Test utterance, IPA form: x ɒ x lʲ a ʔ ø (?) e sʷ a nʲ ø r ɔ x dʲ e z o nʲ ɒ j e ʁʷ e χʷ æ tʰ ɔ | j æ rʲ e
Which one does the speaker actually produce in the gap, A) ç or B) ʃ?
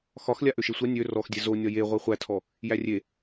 B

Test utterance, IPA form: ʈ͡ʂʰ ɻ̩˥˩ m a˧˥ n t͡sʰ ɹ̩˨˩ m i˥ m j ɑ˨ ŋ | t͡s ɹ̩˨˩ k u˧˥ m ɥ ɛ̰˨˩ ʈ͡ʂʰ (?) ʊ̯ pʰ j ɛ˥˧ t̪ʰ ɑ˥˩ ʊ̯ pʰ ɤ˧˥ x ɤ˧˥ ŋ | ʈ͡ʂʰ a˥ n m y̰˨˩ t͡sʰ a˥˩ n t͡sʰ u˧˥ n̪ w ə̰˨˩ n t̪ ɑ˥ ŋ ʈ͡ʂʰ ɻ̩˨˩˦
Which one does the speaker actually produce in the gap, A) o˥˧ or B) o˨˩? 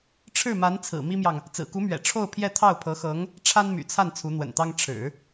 A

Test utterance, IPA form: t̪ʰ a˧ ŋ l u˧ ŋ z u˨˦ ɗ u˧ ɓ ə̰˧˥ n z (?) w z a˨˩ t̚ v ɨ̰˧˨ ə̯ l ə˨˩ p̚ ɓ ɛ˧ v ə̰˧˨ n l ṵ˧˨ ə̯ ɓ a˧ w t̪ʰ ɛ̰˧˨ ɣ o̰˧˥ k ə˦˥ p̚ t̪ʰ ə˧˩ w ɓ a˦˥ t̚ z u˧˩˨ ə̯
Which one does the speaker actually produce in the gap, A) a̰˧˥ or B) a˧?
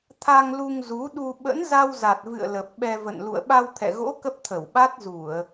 B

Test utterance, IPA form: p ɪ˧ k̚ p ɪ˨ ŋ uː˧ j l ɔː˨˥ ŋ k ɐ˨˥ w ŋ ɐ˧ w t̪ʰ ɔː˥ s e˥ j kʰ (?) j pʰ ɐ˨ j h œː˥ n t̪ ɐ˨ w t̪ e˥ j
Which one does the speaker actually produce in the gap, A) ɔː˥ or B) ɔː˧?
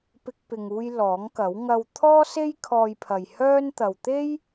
B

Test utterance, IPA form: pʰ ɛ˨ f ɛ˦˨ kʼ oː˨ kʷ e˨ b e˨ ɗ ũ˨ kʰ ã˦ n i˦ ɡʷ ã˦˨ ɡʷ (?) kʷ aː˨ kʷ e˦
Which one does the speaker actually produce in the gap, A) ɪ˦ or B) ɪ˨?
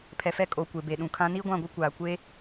A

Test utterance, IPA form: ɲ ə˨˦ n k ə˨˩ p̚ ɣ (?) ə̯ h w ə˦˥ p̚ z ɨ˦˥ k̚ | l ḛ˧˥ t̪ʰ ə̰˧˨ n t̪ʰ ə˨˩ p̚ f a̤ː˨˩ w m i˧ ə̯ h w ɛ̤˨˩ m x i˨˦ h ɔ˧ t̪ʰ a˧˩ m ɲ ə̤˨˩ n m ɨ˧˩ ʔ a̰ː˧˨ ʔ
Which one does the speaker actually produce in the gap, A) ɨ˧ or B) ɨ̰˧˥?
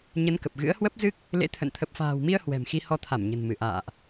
B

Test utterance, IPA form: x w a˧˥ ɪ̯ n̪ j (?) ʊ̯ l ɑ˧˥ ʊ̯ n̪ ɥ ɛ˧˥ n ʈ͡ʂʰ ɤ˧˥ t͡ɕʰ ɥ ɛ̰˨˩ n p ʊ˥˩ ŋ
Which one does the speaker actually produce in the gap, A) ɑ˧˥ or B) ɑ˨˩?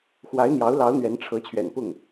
A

